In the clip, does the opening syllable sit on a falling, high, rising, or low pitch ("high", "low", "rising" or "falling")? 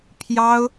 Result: high